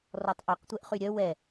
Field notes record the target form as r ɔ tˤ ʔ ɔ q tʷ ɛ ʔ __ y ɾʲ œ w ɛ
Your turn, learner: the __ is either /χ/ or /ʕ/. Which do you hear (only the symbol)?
χ